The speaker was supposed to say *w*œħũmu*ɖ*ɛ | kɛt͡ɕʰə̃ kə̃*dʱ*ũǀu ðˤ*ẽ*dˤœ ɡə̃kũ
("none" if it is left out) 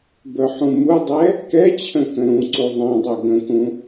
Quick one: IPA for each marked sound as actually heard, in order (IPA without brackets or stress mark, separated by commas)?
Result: b, dˤ, ɾ, ɛ̃